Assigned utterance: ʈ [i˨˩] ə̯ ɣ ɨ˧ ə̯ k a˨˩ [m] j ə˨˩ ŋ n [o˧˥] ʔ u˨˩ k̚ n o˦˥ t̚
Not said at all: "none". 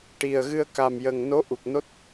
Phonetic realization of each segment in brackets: i˨˩, m, o˧˥

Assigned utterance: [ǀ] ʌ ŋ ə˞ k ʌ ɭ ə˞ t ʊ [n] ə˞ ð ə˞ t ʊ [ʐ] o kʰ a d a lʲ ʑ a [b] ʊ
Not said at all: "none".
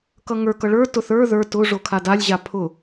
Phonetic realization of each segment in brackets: k, θ, ʐ, pʰ

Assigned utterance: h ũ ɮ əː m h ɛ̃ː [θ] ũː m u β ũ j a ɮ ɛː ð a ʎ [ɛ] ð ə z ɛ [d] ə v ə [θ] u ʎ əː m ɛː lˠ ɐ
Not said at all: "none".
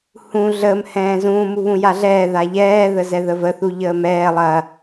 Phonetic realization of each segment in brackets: z, ɛː, ð, θ

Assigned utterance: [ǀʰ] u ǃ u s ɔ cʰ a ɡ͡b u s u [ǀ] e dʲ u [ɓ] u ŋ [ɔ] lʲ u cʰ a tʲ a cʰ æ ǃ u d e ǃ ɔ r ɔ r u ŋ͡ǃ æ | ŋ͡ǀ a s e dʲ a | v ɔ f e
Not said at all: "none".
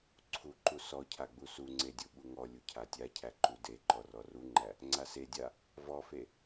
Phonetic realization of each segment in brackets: ǀʰ, ŋ͡ǀ, ɓ, ɔ

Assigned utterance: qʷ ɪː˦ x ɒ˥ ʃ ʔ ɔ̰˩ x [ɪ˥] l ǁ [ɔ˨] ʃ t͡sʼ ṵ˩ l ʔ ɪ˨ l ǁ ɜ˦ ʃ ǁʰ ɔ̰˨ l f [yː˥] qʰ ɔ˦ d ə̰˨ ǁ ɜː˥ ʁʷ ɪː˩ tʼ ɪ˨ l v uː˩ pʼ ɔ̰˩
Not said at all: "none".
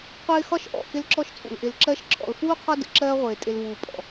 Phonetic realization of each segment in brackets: ɪ˦, ɔ˦, uː˥

